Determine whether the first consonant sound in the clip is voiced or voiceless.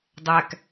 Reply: voiced